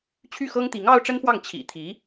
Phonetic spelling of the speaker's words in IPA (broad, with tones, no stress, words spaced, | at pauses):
t͡ɕʰy˥˩xɤ˥ŋ t̪i˧˥ŋɑ˥ʊ̯ʈ͡ʂə˥nfwɑ˥˩ŋ t͡ɕʰḭ˨˩ t̪ʰi˧˥